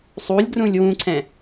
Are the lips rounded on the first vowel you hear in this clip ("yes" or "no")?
yes